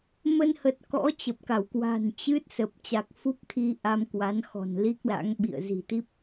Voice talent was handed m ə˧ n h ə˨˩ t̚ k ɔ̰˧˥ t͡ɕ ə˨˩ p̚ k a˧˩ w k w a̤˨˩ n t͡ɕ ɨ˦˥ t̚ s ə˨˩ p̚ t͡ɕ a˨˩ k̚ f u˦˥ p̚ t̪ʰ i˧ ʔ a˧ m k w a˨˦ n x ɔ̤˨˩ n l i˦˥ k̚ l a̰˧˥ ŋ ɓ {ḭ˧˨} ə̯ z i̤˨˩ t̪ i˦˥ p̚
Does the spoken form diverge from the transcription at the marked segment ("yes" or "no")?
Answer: no